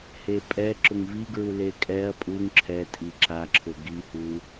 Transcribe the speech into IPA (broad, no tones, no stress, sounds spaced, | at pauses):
h e pʼ ɛ ǁ ʊ ŋ v i ɡ ɹ u l e kʼ ɛ ɐ̯ pʼ u ŋ ǁʰ ɛ tʼ i ǁ a ǁʰ ʊ ɡ i h u